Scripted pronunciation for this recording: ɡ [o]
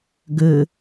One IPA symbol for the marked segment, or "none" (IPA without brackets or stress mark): ɵ